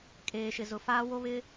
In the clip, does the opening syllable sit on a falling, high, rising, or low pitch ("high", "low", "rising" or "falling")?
low